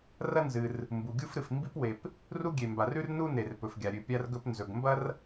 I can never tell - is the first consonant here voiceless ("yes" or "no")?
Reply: no